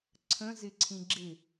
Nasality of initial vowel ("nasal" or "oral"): nasal